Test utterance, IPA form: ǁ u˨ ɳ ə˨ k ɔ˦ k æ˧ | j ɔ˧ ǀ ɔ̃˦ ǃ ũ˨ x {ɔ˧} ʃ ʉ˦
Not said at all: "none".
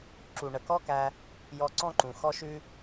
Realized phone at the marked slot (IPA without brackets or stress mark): ɔ˦